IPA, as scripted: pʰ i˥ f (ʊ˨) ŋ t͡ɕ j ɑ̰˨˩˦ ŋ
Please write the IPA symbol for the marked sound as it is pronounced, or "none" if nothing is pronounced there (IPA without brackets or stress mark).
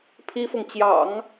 ʊ˨